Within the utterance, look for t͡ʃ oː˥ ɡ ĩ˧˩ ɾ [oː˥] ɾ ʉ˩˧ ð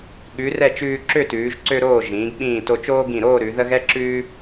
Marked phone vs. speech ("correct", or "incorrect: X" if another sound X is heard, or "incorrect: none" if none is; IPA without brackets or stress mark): incorrect: oː˥˧